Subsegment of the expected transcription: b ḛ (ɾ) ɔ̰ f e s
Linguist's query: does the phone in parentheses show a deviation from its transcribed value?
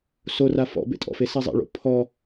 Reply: yes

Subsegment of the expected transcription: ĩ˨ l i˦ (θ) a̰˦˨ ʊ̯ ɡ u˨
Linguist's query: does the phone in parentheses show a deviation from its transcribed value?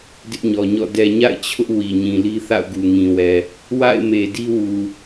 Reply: no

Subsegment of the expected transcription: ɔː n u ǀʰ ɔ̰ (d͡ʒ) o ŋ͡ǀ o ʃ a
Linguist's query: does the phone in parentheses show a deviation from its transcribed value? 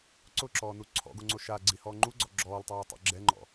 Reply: yes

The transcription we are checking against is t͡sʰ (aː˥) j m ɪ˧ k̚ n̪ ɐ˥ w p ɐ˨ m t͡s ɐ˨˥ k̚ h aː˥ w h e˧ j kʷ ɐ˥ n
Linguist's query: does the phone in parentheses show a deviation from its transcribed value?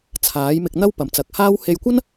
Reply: yes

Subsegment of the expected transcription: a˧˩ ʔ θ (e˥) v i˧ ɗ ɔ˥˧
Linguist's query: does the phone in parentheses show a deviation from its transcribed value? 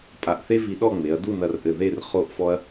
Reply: no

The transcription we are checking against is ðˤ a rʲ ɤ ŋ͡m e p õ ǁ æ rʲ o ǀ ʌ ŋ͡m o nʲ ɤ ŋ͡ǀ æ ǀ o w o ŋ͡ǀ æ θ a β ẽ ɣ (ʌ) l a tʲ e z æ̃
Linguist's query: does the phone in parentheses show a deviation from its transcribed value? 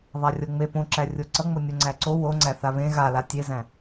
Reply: yes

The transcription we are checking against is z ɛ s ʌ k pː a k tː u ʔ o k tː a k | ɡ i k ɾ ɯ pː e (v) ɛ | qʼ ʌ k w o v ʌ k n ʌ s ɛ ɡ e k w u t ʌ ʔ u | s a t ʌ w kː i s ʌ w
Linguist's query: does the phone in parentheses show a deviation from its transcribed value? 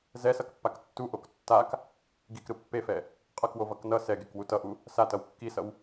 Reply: yes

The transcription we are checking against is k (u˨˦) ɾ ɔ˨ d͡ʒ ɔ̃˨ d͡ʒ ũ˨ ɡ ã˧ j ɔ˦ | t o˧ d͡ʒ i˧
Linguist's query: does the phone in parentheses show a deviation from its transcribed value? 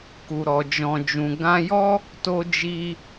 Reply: yes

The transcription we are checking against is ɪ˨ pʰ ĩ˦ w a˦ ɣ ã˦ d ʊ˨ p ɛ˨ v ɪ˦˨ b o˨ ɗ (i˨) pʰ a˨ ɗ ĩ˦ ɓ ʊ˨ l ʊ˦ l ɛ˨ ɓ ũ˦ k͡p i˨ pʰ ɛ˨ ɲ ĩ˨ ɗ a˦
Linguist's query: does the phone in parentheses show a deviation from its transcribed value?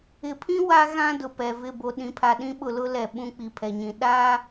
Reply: yes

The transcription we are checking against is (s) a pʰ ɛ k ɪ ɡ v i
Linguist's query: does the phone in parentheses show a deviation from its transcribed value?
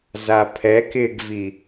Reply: yes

